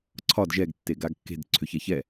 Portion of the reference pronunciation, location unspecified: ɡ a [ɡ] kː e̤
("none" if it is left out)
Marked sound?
ɡ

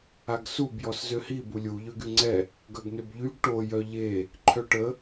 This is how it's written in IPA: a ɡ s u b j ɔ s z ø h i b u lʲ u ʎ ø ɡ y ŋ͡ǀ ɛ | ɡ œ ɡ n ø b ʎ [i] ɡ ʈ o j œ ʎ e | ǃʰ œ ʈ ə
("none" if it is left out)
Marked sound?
y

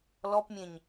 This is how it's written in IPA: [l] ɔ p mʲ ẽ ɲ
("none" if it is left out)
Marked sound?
l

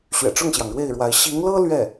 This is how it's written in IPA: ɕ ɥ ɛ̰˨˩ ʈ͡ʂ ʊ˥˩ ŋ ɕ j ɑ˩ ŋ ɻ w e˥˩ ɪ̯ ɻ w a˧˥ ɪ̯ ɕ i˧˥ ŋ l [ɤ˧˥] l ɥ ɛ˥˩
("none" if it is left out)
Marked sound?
ɤ˥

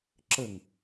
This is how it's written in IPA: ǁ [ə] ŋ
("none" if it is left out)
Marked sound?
ə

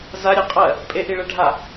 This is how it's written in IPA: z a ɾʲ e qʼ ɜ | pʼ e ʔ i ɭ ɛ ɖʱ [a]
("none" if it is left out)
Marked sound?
a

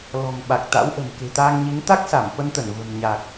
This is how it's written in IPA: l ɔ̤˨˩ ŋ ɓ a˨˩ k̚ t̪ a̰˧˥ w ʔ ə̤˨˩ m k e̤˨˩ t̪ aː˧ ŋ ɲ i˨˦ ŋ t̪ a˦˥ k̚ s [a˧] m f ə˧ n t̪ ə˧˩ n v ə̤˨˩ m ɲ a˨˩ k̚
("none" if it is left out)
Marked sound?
a˧˩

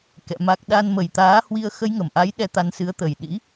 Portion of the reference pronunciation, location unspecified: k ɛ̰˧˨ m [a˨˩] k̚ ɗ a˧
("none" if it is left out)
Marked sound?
a˦˥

